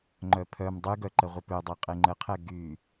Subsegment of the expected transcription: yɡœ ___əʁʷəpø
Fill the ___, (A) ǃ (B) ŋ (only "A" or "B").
A